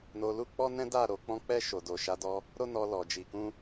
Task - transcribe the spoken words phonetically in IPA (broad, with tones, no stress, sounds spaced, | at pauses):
n o˧ l u˦ k͡p ɔ˦ n ɛ̃˦ d a˦˨ ɾ o˨ k͡p ɔ̃˧ k͡p ɛ˧ ʃ o˨ d o˨ ʃ a˨˦ d ɔ˧ | ɾ o˦ n ɔ˧ l ɔ˨ d͡ʒ i˨ k ũ˧